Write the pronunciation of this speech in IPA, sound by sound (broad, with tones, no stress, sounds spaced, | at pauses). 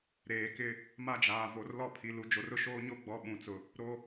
ɾ eː˨ k ɪ˦ | m a˦ d͡ʒ aː˨ v o˨ r l ɔ˦ pʰ i˨ l u˨ d͡ʒ o˨ r ʊ˦ ʃ oː˦ ɲ o˦ ɡ͡b ɔ˨ ɓ ũ˨ t͡s ʊ˨ | ɾ o˦